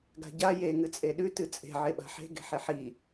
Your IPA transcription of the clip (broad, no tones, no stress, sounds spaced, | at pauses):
ɡ a̤ ɟ a j e ŋ ɨ t͡sʼ e ɗ ʉ t ɨ t͡sʼ e̤ ʕ e ɓ a̤ ħ e̤ ɡ e̤ ħ e ħ i